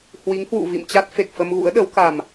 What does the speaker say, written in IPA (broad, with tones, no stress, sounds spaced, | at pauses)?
h w i˨˦ ŋ h w ṵ˧˨ v ḭ˧˨ m t͡ɕ a˦˥ t̚ f e˨˩ k̚ f ə˧ m ɣ ṵ˧˥ ə̯ ɗ ə˨˦ w k a˨˩ m